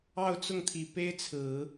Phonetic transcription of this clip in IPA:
ɑ˥˧ ʊ̯ t͡s ʊ˥˩ ŋ t̪ʰ i˨˩ p e˥ ɪ̯ t͡sʰ ɹ̩˨˩˦

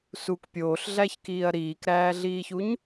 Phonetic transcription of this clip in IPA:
s u k pʲ oː ɬ ɮ æ ç k iː ɐ̯ ɾ iː k ɾ æː ɮ iː ç u ɲ

